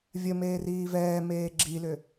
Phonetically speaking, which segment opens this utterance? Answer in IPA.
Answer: vʲ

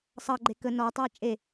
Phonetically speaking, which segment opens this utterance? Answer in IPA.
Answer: sˤ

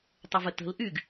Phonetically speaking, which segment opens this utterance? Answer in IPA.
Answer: tˤ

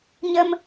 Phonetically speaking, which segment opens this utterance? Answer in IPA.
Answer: ɲ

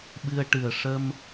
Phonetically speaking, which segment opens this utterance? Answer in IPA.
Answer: ɓ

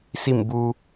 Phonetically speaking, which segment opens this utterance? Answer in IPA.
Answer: s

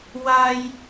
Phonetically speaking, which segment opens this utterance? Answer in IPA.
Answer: w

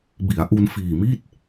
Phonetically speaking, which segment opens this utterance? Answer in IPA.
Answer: b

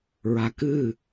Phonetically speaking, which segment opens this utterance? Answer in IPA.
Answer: ɹ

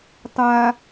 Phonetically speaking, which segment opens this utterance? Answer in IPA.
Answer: tˤ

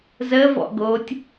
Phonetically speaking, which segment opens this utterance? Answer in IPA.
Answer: z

